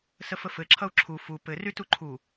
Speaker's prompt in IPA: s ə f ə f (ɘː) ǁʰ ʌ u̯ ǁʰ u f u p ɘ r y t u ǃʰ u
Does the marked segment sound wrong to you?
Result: yes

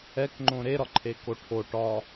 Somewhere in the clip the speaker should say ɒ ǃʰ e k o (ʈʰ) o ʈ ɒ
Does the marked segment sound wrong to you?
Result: no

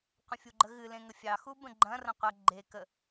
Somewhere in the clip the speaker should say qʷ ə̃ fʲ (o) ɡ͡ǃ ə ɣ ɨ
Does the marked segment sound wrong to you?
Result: yes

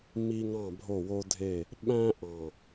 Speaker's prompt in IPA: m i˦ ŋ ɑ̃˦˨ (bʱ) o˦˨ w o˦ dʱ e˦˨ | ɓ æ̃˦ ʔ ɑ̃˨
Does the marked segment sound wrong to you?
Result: no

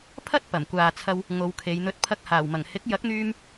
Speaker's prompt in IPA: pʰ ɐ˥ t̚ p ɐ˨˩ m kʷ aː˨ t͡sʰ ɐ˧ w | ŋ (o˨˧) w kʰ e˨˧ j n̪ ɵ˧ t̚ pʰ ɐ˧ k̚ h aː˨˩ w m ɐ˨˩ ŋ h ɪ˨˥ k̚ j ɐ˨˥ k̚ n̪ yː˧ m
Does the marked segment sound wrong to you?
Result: no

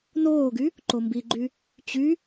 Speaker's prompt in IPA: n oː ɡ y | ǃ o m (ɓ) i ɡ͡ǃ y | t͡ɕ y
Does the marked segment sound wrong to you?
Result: yes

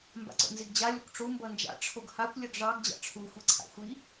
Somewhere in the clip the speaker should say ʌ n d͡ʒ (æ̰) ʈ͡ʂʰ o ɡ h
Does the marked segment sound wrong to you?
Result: yes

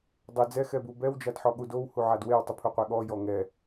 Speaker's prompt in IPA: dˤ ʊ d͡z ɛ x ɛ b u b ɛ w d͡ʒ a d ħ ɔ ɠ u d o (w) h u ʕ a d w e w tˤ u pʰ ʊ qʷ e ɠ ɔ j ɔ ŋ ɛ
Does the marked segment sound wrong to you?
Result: no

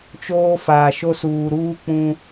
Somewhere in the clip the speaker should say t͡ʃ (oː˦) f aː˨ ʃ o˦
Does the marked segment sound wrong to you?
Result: no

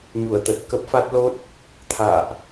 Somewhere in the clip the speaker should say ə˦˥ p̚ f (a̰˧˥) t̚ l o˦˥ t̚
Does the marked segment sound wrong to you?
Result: yes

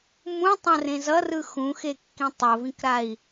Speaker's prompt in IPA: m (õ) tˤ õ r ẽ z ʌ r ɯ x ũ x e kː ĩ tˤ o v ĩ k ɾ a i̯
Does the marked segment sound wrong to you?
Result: yes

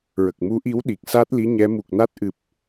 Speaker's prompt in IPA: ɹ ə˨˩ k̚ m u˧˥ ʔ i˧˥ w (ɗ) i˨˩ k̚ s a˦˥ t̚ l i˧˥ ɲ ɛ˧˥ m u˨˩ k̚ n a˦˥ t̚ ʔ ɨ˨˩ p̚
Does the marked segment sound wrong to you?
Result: no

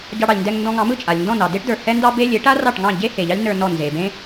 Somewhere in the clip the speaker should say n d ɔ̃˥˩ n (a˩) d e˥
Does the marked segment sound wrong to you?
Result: yes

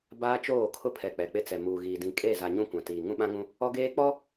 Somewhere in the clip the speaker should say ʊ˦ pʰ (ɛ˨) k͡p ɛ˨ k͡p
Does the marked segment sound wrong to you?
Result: no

